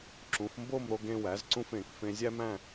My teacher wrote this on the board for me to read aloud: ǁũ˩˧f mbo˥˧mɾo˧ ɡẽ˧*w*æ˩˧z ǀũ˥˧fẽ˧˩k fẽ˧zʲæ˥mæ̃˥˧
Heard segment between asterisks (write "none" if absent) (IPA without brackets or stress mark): w